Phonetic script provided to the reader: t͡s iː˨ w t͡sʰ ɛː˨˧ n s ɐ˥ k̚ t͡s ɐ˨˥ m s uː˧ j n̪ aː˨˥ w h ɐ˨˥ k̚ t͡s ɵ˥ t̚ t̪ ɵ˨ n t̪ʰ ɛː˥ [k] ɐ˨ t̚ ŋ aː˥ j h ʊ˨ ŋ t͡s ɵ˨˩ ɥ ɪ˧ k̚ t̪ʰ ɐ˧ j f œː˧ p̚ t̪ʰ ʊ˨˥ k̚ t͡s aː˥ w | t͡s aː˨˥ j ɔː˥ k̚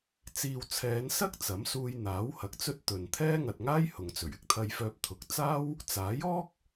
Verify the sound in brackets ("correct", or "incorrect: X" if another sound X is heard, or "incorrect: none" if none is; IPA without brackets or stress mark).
incorrect: ŋ